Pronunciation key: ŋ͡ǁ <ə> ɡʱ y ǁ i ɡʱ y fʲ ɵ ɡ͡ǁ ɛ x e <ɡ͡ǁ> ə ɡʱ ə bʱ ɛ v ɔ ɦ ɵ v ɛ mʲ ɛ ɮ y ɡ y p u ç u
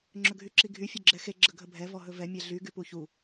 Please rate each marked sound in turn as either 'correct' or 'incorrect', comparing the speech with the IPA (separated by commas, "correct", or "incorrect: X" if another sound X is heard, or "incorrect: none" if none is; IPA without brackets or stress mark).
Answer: incorrect: ɵ, correct